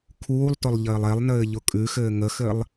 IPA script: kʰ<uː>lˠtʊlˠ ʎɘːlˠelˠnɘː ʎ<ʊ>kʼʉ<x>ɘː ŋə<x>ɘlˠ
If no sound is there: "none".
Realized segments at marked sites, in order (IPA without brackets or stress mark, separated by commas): uː, ʊ, x, x